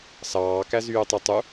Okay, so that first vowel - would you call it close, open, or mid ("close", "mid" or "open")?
open